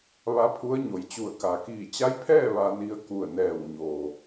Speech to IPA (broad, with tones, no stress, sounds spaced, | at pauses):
ʋ a˧˥ pʰ u˧˥ ə̯ ɲ o˩˧ j t͡ɕ u˧˩ ə̯ k a˩ k iː˧˩ t͡ɕ a˧˥ j pʰ ɛː˥˨ ʋ a˧ n i˧ ə̯ k u˧˩ ə̯ n ɛː˧˩ w ɲ o˩